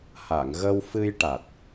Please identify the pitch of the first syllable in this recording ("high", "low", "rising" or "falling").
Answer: low